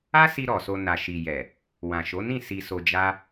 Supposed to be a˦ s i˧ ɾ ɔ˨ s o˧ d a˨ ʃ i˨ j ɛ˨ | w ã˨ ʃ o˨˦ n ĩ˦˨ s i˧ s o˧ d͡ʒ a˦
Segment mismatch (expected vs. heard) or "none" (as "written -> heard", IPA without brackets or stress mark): d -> n